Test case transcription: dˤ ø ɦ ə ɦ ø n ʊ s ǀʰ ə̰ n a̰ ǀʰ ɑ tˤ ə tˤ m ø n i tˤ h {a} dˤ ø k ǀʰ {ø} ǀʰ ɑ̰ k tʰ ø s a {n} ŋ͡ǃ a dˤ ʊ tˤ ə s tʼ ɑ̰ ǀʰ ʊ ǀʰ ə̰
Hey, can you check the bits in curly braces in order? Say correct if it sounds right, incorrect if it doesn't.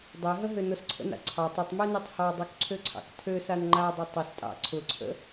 incorrect, correct, correct

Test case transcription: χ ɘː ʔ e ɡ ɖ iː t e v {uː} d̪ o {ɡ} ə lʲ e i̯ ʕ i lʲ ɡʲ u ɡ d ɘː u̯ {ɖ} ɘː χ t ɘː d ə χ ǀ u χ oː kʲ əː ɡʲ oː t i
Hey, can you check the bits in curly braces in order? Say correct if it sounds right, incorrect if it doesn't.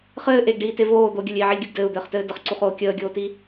incorrect, incorrect, incorrect

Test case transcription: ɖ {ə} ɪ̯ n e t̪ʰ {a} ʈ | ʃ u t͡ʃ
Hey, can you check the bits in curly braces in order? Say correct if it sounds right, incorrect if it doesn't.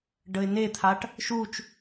correct, correct

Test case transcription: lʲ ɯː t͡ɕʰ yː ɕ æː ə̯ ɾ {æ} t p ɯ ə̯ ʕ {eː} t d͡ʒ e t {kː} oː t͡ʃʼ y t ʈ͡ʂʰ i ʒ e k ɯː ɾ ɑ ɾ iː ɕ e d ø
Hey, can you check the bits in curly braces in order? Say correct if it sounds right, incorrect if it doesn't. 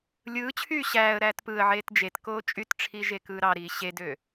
incorrect, correct, incorrect

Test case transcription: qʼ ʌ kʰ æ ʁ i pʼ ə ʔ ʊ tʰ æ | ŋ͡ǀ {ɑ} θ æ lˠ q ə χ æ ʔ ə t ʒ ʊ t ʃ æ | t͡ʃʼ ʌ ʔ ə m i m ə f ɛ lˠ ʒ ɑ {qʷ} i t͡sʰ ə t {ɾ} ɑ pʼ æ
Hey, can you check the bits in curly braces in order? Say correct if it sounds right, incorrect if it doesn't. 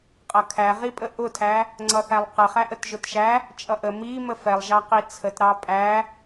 incorrect, incorrect, correct

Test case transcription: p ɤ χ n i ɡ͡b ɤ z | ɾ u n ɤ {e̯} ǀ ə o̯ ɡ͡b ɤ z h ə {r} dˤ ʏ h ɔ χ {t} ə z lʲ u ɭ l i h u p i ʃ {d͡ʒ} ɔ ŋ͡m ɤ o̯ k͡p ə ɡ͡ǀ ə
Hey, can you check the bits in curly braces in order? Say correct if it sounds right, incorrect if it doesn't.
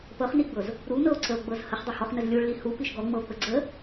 incorrect, incorrect, incorrect, incorrect

